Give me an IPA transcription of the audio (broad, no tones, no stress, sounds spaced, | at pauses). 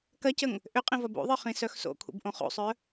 k ɐ c ə ŋ | ʔ ʏ qʼ ĩ v ɐ b o̰ ðˤ ə˞ χ ĩ s œ x s o̰ kʰ ṵ b ʔ õ χ o̰ sˤ œ